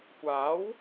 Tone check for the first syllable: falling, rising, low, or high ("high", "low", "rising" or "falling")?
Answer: rising